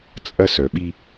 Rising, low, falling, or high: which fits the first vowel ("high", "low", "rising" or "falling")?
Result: high